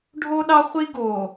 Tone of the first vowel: high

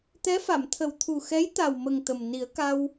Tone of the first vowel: rising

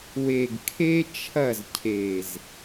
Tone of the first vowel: low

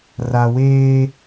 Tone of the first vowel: low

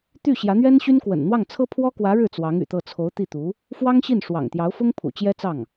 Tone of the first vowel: falling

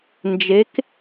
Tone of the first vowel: rising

